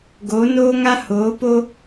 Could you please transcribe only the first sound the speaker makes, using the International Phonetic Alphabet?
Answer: ɡ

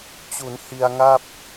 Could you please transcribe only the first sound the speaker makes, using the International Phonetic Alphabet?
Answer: t͡ɕ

